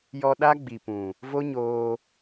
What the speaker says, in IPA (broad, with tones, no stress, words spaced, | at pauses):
jɔ˧ ɗa˦ ɡ͡bi˨pũ˨ | vo˦ɲoː˧